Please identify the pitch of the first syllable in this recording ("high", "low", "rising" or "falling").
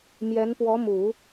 rising